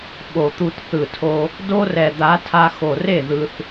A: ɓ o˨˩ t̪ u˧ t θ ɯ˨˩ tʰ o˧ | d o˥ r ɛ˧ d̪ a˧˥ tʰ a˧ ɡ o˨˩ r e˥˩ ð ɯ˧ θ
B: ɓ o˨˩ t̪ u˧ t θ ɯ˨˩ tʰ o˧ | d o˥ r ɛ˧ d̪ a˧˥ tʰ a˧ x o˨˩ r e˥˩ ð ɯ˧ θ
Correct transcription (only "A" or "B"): B